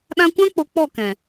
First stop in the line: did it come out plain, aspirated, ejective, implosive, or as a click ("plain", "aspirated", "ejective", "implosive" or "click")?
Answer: implosive